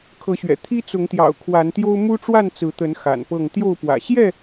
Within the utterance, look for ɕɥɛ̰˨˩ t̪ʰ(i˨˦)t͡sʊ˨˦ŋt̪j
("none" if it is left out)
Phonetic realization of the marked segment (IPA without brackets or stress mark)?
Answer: i˦